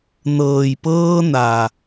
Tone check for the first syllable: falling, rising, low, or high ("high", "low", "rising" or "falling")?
low